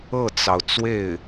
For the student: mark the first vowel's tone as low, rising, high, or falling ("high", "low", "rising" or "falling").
falling